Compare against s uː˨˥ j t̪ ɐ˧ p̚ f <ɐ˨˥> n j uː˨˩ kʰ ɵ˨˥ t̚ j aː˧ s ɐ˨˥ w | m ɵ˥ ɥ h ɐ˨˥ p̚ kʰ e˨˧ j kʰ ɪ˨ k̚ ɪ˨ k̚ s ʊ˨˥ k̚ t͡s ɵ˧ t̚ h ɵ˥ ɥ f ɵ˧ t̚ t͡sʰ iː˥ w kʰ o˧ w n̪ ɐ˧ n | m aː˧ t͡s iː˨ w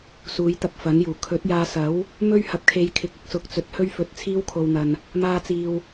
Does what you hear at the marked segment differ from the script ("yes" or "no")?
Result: no